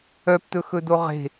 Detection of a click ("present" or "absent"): absent